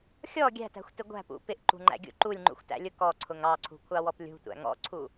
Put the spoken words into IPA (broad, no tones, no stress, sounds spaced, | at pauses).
xʲ ɔ ɡʲ æ̤ t æ̤ xʷ t ɪ ɡʷ æ̤ p ṵ p ɪ ʔ ǃ ṳ ŋ͡ǃ æ̰ ɡʲ ṵ ǃ u lʲ ŋ͡ǃ ṵ xʷ t æ̰ lʲ ʊ k ɔ ǀʰ ʊ ŋ ɑ ǀʰ ṳ kʷʰ ɑ w ɔ p lʲ ṳ tʷ æ̰ ŋ ɔ̰ ǀʰ u